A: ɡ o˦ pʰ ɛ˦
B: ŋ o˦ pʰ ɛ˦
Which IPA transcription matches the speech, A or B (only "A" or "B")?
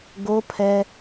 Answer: A